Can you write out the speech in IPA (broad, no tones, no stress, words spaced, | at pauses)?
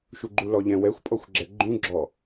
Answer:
ʃuɡ͡ǃulɔʎɛ̃ wɛxʷpʼɔxʷɡ͡ǁɛ ɡ͡ǃũɡ͡ǁɔ